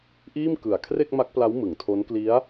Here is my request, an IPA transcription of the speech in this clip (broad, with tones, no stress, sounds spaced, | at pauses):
ʔ iː˥˩ m k ɯ˨˩ a̯ kʰ r e˥˩ k̚ m a˦˥ k̚ p l a˦˥ w m ɯ˨˩ ŋ tʰ o˦˥ n k l i˦˥ a̯